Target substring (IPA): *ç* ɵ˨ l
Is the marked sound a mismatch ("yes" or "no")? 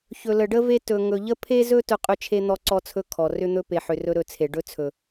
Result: no